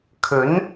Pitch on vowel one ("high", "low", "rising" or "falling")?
rising